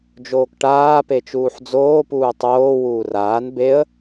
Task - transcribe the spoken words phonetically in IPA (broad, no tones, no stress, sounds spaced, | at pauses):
d͡ʒ oː k ʈ aː p e t͡ʃ uː ħ d͡z oː p uː tˤ oː w uː r aː n b e ə̯